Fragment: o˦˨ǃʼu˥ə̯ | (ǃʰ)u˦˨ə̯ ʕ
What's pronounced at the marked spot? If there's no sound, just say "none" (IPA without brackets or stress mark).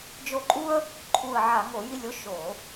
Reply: ǃʰ